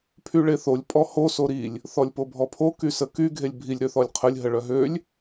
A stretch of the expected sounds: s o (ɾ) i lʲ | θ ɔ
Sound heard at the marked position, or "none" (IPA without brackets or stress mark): ɾ